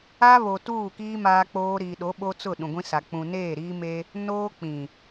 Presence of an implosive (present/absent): present